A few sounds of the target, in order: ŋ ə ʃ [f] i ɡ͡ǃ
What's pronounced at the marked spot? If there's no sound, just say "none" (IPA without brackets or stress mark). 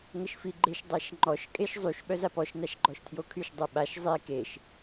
f